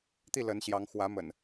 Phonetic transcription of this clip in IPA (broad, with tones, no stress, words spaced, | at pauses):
t̪i˥˨lə˨˦nɕjɑ˨˦ŋ xwä˨˦mə̰˨˩n